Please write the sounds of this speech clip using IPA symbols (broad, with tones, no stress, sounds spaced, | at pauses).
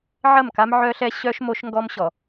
ʕ ɐ˦˨ m k a˦ m ʕ œ˦ ɬ ɛ˦ ɕ œ˦ ʃ m o˦ ʃ ŋ ɡ ɔ˦ m ɕ ɔ˨